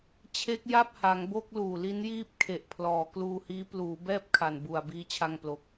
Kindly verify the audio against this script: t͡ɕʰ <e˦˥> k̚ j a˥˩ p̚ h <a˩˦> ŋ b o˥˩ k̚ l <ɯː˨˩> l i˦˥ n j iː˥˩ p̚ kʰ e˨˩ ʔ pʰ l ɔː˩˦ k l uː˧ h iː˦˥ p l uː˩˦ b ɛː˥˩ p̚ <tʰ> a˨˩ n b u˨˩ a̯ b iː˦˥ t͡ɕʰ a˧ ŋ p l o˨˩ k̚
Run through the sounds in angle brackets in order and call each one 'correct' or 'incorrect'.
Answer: correct, correct, incorrect: uː˨˩, incorrect: kʰ

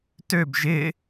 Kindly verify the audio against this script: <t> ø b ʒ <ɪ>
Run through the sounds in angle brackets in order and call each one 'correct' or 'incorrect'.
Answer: correct, correct

